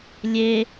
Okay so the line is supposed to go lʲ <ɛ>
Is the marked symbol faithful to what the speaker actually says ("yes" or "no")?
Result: no